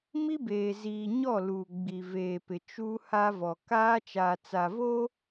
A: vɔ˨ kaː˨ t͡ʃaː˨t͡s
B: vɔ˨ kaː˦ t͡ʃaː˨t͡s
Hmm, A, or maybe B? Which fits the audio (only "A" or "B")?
B